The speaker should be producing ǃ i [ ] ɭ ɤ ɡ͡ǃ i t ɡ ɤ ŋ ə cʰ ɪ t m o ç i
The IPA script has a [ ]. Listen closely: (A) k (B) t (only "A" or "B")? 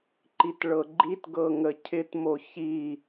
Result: B